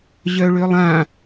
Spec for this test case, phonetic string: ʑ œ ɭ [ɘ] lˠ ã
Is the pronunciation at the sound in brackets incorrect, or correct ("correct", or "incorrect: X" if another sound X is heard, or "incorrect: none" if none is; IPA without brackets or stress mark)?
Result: incorrect: ø